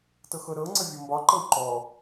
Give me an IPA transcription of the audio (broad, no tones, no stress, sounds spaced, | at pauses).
t ɤ x ɤ ɾ ɤ ŋ͡ǀ ə vʲ ɔ m b ɒ ǃ ɤ w ǃ ɔ